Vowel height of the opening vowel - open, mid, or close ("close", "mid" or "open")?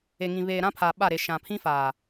mid